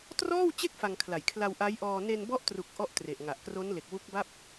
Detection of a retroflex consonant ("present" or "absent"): absent